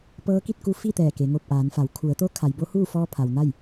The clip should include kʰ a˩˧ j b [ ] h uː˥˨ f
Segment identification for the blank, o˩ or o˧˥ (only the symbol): o˧˥